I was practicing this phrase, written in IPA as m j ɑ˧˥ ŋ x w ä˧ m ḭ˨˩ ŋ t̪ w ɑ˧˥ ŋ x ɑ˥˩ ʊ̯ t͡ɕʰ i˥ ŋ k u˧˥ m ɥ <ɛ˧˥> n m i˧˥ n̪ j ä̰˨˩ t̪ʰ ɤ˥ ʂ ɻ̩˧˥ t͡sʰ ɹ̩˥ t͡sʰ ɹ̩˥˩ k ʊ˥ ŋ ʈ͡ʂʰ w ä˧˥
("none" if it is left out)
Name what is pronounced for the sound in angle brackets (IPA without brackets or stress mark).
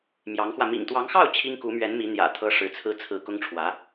ɛ˧˥